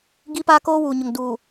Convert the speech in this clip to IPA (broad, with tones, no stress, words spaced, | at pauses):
ɡi˦paː˦koː˦ wuː˨ɲʊ˨ŋ duː˨